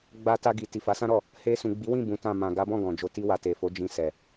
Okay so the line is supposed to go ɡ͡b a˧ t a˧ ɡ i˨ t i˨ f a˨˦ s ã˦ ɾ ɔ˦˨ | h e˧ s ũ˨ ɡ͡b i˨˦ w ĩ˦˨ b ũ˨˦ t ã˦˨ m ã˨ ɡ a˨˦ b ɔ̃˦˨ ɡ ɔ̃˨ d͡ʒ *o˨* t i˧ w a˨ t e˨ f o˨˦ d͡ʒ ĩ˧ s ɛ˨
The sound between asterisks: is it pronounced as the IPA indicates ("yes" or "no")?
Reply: yes